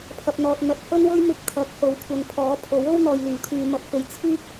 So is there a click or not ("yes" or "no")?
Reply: no